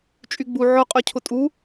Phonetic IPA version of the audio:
t͡ʃʼ y ɡ͡b u ʕ ʊ qʼ œ cʰ ʊ tʼ u

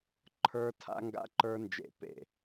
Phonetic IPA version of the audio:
ǃʰ ə˞˦˥ tʰ a̰˦˥ ŋ ɡ a̰˦˥ ǃ ə˞˦˥ n d͡ʒ ḛ˧˩ p ḛ˧˩

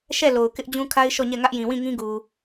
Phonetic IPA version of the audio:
ʃ ɛ˦˨ l o˨ ʊ̯ k ɪ˦ ʔ d͡ʑ ũ˦ kʰ a˦ ɪ̯ ʃ ɔ˦˨ ɲ ɛ˦˨ ŋ ä˦ ʔ j ĩ˨ w ĩ˦˨ ŋ ĩ˦ ɡ u˨

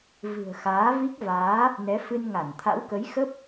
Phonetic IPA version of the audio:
v ɨ̤˨˩ ə̯ x aː˨˦ v i˦˥ k̚ v aː˨˦ | n ɛ˨˦ f ɨ˧ n ŋ a˧˩ n t̪ʰ a̰˧˥ w k ə˨˦ j x ə˦˥ p̚

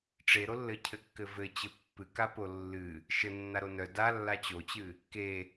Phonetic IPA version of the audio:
ʈ͡ʂ e ɾ o lː ɘ cʰ ɘ kː ɘ v ɘ t͡ɕ ɘ pː ɨ k a p o lː ɨ | ʃ ɘ nː a ɾ o n œ d a lː a t͡ɕ o t͡ɕ ɨ | k e

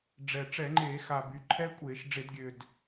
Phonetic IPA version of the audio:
ɖ͡ʐ ɛ˨˩ ʈ͡ʂ ɛ˧˩˧ ŋ͡ǃ eː˧˩˧ x a˨˩ b y˩˧ ǃʰ ɛ˦˥ kʷʼ eː˧˩˧ ʃ ɖ͡ʐ e˧˩˧ d ɡʲ ø˨˩ d

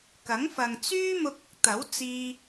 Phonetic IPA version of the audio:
k ɐ˨˥ ŋ f ɐ˨ ŋ t͡s yː˥ m ʊ˧ k̚ ʊ˥ k̚ t̪ ɐ˨˥ w t͡s iː˧

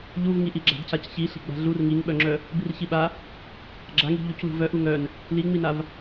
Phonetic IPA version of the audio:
ʎ u v ŋ i ʔ i ɡ͡ǁ a̤ d c a c ç i ɬ i̤ ɡ͡b a̤ ɮ u r ŋ i ŋ ɓ œ ŋ͡ǁ œ | b i r ç i ɓ a | ɡ͡ǁ a ŋ i̤ ʎ u c l ṳ v œ ʔ u ŋ œ n | l i ŋ͡m i n a v

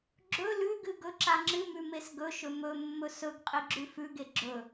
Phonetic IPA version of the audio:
ɡ͡ǁ ɵ l ʉ ɡ ɨ ɡ ɵ ǁ a ŋ͡ǁ ɨ m ʉ m e s ɡ ɵ ʃ ɵ m ɵ mː ɵ s ɵ ɡ qʼ i ɡ͡ǁ ʉ f ʉ ɡ e ɡ͡ǁ ɵ

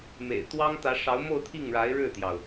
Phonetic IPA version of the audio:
m ḛ˨˩ ɪ̯ t̪ w ɑ˥ ŋ t̪ ä˧˥ ʂ ɑ˧˥ ʊ̯ m o˥˧ ʊ̯ t̪ʰ i˥˩ ŋ ɻ a˧˥ ɪ̯ ɻ ɻ̩˥˩ t̪ j ɑ˩ ʊ̯

